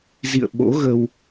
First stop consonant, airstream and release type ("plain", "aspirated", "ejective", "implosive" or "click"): implosive